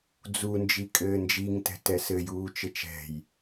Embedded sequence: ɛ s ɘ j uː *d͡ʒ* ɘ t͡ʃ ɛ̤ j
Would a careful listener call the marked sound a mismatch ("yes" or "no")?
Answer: yes